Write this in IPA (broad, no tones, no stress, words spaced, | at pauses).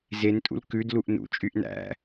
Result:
zentʼṵl kʉdluʔ nṵt͡ʃʼyʔ næ̰